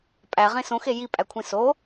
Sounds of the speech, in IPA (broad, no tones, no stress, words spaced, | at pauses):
pʼæʁẽ sõxe jipʼækʷʰĩ so